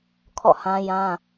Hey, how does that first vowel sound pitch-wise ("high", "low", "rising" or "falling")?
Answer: falling